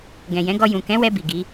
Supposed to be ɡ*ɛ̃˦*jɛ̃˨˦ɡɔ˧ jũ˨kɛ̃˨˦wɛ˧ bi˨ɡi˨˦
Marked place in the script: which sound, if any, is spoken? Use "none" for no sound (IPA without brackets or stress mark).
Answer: ɛ̃˨